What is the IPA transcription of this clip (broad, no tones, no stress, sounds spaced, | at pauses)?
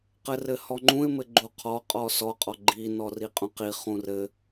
q ɘ r ɘ h ɔ ŋ͡ǃ ũ ɪ̯ m ɘ ɡ͡ǃ u qʰ ɔ qʼ ɔ s ɔ qʼ ɔ ɡ͡ǃ i n ɔ r i qʼ ũ q i χ ũ r ɘ